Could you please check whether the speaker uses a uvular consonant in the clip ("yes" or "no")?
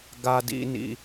no